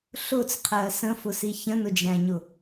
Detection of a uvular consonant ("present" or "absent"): present